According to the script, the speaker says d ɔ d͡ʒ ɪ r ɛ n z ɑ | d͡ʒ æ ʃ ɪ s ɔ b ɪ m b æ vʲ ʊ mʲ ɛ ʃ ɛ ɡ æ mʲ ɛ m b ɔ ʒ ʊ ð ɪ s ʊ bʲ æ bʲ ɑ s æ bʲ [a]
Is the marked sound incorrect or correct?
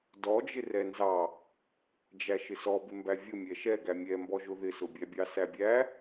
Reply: incorrect: æ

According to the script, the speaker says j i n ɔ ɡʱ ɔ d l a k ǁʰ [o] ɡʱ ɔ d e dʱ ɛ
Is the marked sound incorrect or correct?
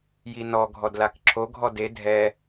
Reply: correct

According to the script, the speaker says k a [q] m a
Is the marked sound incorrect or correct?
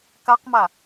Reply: correct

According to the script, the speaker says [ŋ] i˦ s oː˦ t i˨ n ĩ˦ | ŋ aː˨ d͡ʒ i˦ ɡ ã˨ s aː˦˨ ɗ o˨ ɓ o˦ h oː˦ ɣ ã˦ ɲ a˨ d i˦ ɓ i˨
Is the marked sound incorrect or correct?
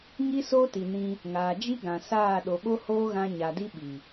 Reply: correct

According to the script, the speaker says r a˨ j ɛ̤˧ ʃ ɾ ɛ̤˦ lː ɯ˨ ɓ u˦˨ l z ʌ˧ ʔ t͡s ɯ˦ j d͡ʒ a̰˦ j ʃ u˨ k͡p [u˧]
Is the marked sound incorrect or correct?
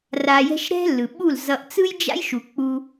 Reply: correct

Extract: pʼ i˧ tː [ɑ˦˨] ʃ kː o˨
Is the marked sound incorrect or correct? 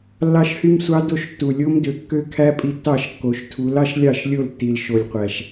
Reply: correct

